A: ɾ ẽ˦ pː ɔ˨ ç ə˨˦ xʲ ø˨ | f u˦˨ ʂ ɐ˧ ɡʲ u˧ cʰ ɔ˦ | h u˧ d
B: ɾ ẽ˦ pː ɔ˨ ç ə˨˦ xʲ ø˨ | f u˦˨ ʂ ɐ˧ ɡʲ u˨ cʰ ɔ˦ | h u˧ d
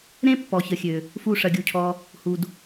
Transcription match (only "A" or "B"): A